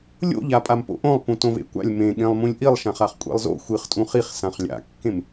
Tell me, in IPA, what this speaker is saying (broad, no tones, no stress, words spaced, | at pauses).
lʲo̰ʎa pʼampo̰ʔõlˠ pũtõvḛkʷa̰lʲ mẽ ɠẽlˠmũlʲʔilˠʃãχ aχkʷʼḛlˠzo̰ xʷɨχtʼũ χiχsãχ lʲa̰kːẽm